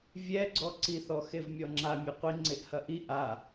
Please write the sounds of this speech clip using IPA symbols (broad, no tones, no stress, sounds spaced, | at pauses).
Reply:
vʲ ɛ ɡ͡ǀ ɔ ǀ i θ ɔ x e v mʲ ɔ ŋ͡ǁ a mʲ e qʷ i ŋ͡ǀ e ʔ h ɐ ʔ i ʔ a